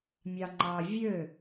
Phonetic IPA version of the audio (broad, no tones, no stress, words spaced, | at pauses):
mʲɑŋ͡ǃɑ vʲø